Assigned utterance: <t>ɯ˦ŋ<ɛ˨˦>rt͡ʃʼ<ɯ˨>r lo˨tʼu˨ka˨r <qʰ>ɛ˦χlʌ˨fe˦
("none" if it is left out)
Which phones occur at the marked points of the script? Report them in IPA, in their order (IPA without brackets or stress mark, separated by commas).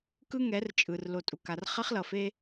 k, ɛ˨˦, ɯ˨, χ